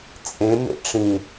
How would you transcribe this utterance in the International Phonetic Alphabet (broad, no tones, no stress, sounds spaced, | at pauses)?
t͡sʼ ẽ m ḛ ʈ͡ʂ ĩ